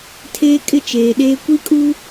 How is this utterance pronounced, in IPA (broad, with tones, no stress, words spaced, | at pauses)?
tʰeː˦kʼɪ˦t͡ʃeː˨ɗeː˦ kʷi˦kʼu˦